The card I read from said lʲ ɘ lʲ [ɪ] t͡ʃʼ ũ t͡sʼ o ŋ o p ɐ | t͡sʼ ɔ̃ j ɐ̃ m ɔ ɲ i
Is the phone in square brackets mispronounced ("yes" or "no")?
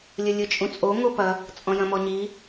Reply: yes